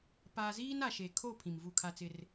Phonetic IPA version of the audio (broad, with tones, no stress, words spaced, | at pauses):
pa˦ ziː˦na˨ʃe˨kʰo˦˨ pʰĩ˨mvu˦˨kʰa˦t͡sɪ˦r